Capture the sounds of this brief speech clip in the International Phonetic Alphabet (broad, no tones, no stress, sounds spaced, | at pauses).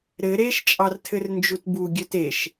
ɾ ɘ ɾ e ʃ t͡ʃʼ ɑ r tʰ ɘ r n d͡ʒ u t b u ɡʲ œ t e ʃ